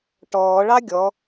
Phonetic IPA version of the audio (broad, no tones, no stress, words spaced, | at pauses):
ʈɔːɭɑ ɡʲɔ